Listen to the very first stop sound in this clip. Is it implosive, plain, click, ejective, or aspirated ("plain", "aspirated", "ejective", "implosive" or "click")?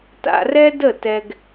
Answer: plain